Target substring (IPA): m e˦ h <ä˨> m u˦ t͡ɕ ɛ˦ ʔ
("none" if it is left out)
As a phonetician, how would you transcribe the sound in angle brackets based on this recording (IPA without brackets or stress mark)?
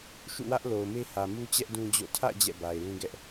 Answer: ä˨